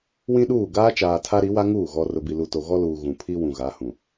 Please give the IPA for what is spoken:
w ĩ˦ ɗ uː˦˨ ɡ aː˦ t͡ʃ aː˨ tʰ a˦ ɾ i˨˦ w a˦ ŋ uː˦˨ ɣ ɔ˨ r ʊ˨ b i˨ l u˨ t o˨ ɣ ɔ˦ l uː˨ ɣ ũ˨ pʰ i˦ w ũ˨ ɣ a˨˦ h ũ˨

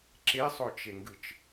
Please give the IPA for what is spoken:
ǁ e sˤ o t͡ʃ e ŋ ɡ ɯ t͡ʃ

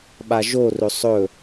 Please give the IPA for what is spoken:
ɓ a ʒ o r ɵ sˤ ɵ

